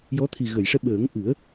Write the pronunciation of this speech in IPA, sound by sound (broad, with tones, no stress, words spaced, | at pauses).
jɔ˧˥t̪ʰi˨˩ ɣə˨˩˨jʂɛ˧ ɓəː˨˩˦ŋʔɨ˨˩˦ə̯